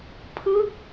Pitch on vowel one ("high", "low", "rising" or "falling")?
falling